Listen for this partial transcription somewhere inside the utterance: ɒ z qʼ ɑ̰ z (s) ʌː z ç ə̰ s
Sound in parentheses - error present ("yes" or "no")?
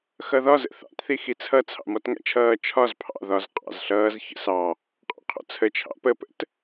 yes